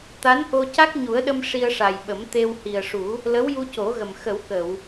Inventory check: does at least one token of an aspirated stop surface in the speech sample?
no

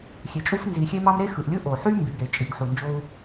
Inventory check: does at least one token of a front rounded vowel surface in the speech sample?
yes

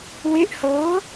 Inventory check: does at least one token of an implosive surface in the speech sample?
no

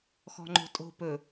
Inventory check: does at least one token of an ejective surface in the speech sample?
yes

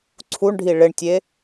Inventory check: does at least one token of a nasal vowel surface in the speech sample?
no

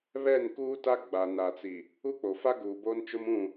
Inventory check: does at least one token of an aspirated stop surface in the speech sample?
no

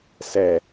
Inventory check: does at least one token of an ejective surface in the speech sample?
no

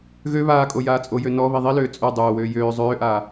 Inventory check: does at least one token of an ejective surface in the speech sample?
yes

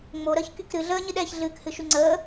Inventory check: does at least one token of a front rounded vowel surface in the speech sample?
yes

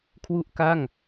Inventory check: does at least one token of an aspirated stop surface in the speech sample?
yes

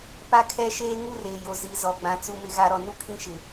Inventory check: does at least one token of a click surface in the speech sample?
no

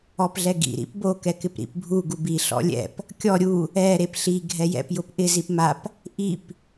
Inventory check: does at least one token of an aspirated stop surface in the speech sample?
no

